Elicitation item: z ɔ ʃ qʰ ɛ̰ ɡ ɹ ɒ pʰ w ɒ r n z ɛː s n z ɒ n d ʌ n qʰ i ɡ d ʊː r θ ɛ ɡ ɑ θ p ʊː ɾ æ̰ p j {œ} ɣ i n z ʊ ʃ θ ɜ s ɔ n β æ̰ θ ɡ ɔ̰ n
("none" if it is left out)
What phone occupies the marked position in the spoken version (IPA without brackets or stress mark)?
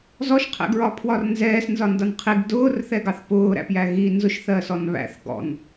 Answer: æ